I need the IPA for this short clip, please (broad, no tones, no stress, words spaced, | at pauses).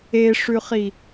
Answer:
eʂʉχi